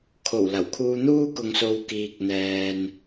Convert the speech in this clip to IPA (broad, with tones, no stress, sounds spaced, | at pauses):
kʰ o˨˩ w l ɐ˨˩ w kʰ uː˧ n̪ uː˥ k ʊ˨ ŋ s o˨ w k iː˨ k̚ n̪ ɛː˨ n